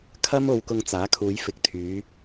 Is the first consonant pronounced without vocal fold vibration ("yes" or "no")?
yes